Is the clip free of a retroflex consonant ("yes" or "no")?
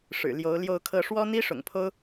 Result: no